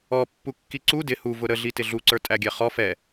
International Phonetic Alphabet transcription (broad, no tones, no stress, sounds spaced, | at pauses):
ɔ pː u kː i ǀ u d ɪ h u v ʊ ɾ ə ɮ i t ɪ ɮ u ǀ ə˞ tʼ æ ɡʲ ɛ χ ɔ f ɛ